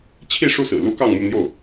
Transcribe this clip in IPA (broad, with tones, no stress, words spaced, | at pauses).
t͡ɕʰi˥˧ʂu˥˩sɹ̩˨˩lu˥ kɑ˥˧ŋmu˥˧n̪jo˥˩ʊ̯